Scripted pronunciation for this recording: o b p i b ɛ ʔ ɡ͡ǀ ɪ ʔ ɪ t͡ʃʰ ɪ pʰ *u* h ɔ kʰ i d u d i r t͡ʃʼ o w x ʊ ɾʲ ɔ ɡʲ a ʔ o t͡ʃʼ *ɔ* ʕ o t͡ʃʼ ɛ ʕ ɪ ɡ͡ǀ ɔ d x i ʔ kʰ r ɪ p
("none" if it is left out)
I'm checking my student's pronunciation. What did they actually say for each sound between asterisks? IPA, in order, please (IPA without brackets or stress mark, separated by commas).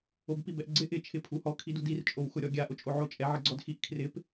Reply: u, o